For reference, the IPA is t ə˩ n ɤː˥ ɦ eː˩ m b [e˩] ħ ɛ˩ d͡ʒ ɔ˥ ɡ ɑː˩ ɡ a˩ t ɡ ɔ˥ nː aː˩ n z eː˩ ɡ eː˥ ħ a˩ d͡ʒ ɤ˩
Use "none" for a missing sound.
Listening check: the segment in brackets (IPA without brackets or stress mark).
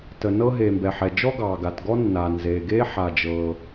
ɛ˩